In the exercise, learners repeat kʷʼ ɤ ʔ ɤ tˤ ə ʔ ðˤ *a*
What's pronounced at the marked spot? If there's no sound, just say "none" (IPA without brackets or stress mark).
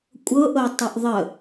ə